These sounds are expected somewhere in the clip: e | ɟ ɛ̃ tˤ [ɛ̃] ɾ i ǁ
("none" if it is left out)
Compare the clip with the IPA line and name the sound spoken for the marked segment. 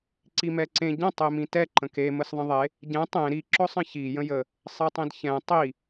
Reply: ẽ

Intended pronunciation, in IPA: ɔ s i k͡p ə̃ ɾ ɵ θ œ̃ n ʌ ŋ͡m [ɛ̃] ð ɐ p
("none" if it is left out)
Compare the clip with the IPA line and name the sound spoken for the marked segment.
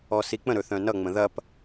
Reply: ə̃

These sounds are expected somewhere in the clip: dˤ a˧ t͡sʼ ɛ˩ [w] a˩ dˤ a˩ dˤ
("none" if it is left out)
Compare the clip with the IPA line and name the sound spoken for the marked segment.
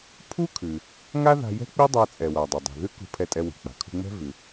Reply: w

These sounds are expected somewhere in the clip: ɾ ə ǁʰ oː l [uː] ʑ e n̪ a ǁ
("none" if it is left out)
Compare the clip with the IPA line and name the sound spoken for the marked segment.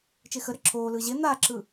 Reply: ɯː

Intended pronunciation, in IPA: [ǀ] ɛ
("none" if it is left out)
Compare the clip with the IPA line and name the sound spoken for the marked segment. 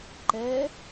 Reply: ǃ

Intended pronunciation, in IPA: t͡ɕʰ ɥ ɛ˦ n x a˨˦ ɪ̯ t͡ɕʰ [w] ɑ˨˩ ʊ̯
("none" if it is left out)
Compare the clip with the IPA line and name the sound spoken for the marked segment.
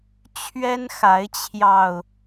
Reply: j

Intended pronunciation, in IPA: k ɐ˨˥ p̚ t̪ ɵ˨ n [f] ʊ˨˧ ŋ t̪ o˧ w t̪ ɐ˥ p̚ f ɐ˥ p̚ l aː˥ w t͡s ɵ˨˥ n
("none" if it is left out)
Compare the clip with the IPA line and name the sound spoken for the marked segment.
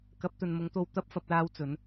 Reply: m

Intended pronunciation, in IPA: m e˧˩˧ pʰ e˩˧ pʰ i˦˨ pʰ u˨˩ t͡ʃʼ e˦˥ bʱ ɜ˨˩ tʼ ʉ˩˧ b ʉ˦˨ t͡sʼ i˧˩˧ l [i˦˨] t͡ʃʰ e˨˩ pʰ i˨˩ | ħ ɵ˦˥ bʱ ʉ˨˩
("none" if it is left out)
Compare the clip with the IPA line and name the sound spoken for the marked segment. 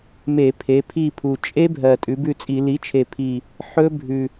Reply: i˩˥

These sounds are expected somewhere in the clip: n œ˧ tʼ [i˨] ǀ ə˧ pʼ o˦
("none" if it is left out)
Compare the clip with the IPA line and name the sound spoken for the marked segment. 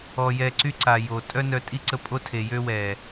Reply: i˦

